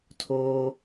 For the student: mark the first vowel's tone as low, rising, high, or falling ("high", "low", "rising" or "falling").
high